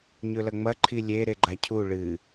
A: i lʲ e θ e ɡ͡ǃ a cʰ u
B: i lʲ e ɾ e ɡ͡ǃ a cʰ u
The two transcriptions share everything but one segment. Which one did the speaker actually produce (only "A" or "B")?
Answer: B